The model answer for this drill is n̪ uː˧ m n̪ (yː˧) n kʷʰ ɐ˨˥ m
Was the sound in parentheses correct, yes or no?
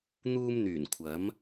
no